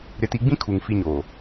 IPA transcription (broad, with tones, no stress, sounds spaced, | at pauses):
ɾ ɪ˨ t i˨ ɡ͡b ĩ˦ kʰ u˨ ŋ f i˦ ɲ oː˨